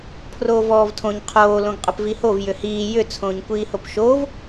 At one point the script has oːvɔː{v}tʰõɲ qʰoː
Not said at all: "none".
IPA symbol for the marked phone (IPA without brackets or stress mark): v